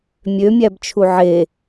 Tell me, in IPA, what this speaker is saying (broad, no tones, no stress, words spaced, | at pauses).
mʲø mʲæbt͡ʃʰuʕe